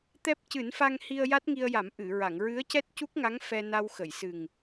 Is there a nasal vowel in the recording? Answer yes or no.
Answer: no